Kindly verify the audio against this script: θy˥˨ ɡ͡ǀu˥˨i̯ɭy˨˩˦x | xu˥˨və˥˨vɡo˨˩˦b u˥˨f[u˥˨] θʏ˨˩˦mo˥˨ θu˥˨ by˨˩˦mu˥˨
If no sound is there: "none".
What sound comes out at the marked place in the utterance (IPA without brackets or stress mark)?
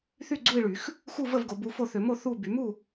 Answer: o˥˨